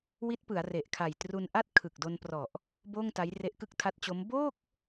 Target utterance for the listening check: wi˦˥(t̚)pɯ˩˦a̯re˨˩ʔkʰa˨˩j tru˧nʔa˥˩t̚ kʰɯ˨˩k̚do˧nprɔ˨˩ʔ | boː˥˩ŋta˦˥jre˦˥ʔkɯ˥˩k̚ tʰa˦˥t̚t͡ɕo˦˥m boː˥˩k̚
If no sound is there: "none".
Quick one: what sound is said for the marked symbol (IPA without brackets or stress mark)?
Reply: t̚